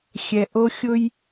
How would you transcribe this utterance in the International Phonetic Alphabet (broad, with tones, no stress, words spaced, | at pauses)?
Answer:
xʲɛ˨ʔo˧ xʲʊ˦j